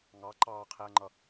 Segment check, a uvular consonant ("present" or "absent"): present